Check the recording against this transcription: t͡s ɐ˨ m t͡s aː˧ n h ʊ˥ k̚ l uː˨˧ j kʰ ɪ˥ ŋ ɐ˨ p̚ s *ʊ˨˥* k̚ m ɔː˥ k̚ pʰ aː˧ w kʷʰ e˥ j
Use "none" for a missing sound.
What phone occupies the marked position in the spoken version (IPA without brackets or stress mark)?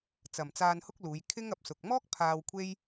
ʊ˨